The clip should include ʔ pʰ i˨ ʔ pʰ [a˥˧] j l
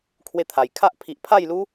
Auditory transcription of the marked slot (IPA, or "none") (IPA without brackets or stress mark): a˥˧